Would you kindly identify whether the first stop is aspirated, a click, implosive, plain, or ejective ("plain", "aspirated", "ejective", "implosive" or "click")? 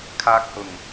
aspirated